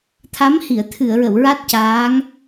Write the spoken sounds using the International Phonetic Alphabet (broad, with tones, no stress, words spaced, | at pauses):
t̪ʰa˧˥mhi˨˩˨ə̯ t̪ʰɨ˨˩˨ə̯ɹə˨˩˨w ɹa˦˥t̚caː˧˥ŋ